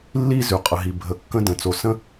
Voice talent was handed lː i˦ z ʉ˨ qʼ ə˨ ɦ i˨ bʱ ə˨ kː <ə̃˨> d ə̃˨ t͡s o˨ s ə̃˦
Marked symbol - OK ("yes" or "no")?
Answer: no